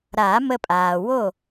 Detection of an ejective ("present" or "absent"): present